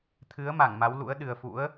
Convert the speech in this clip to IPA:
t̪ʰɨ˨˦ə̯ma˧˩ŋ ma˨˦wlṵ˧˥ə̯ ɗɨ˨˩ə̯fṵ˧˥ə̯

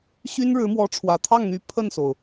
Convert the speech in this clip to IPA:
ɕy˥nɻɻ̩˧˥mwɔ˧˥ ʈ͡ʂʰwä˨˩t̪ʰɑ˥˩ŋn̪y˧˥ pʰə˥˩nso˩ʊ̯

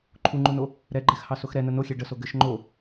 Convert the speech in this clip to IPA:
ǃʰuŋ͡ǃuno | ɾɛɡ͡ǃɛxhɑsox ɾɛnə noxʲe ɖəso ɡɘʃ ŋ͡ǃo

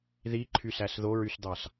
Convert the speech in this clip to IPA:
ðiǃʰysæs ðoɹysd̪ɑs

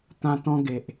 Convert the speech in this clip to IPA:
t̪ã˧t̪ɔ̃˧ɡe˨ʔ

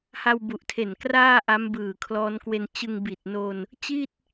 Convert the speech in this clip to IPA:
ha˧wbu˨˩ʔtʰe˨˩n kraː˥˩ ʔa˦˥mbɯː˨˩kʰlɔː˦˥nkwe˧n t͡ɕɯ˧ŋbi˨˩t̚no˧n | t͡ɕi˥˩t̚

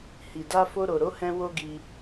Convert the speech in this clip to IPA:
hi˨da˧ fo˧ɾo˨ɾo˨˦hɛ̃˧ wo˦ɡi˧

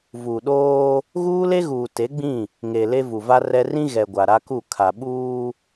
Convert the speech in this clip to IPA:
vu˨ɗoː˦ | ɣuː˦le˦ɣuː˨ te˨˦ɡ͡bĩ˦˨ | ŋe˨le˦ vu˨va˦rɛ˦ rĩ˦ɣɛ˨ ɡʷa˨ɾa˦ku˦˨ kʰa˨ɓuː˦

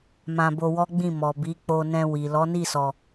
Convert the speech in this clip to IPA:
mã˧bo˧wɔ˦ɡ͡bĩ˦˨ mɔ˨ bi˨˦k͡po˧nɛ̃˧ wi˨ lɔ˨˦ni˦˨sɔ˨

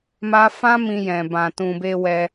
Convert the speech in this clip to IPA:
ma˦ fã˦ mĩ˧ jɛ̃˨ bã˨tũ˨be˧ wɛ˧

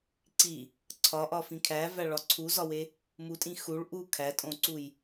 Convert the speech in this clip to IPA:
ǀi | ǀʰɒʔɒfĩ kʰævæɭɒ ǀʰuzɒwe | mutʼĩ xuɭ ʔu kʰætʼõǀuj

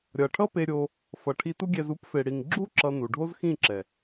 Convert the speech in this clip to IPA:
ɾʲʌ˨ʈʰʌ˦pe˧ ɾʲo˧ | fʌ˨ʈʰi˧tu˦ɡʲɛ˧z u˦pfe˨ɽi˨ŋ ɡ͡ǁu˦ ǁʌ˧nu˨ ɖʱo˦z xĩ˦˨ǁɛ˨

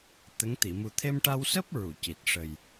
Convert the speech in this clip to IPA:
t̪ə˧˥ŋ t̪i˨˩˨ mu˨˩t̪ʰe˧mʈa˧wsəː˦˥p̚ ɹu˨˩˨ci˨˩t̚ ʂə˨˩j

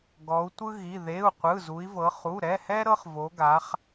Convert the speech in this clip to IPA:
ɡɔ˩˧u̯tʷɯ˦ɣi˩˧˩ ðe˩˧˩u̯ qʷɯ˩˧˩zu˩˧i̯vɤ˩˧ χu˩˧˩ɾɛ˩˧˩hɛ˦ ɾɤ˦χvo˩˧ɡa˩˧χ

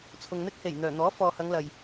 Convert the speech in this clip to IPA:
t͡sʰʊ˨ŋn̪ɪ˥k̚ he˨˩j n̪œː˨˩ n̪ɔː˨˥fɔː˨hɐ˨˧ŋ lɐ˨j

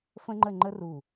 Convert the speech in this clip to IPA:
fə̃˥ŋ͡ǃə˥˧ŋ͡ǃə˥ru˧˩

